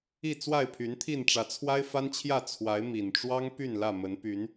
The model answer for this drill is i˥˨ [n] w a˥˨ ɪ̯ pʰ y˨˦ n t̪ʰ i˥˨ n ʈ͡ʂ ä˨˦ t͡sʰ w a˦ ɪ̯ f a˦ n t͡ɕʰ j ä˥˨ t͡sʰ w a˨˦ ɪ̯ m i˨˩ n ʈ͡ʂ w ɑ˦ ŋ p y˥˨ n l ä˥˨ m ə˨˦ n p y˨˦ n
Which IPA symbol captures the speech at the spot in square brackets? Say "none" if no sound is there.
t͡s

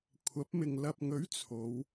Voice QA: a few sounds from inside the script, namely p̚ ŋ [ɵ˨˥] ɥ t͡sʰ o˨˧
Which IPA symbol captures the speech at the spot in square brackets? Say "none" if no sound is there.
ɵ˨˥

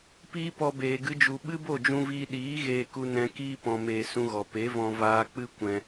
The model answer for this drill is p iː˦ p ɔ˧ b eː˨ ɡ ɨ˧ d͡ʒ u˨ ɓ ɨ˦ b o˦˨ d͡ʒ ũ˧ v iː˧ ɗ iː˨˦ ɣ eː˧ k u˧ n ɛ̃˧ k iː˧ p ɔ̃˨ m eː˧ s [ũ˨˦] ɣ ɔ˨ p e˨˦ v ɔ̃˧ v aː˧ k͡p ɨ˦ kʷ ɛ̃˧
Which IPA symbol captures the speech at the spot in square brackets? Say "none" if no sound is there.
ũ˧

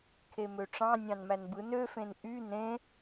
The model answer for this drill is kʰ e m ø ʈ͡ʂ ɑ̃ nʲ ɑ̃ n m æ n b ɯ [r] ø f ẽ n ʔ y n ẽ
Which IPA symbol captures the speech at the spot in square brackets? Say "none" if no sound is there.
n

